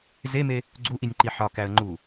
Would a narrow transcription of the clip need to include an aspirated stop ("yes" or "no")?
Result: no